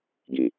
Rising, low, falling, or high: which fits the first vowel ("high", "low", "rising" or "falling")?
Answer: low